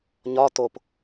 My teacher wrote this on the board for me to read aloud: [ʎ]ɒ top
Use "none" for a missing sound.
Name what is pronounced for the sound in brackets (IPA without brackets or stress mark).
ɲ